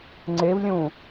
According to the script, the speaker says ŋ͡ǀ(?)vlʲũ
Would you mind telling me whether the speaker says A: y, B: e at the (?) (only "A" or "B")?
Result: B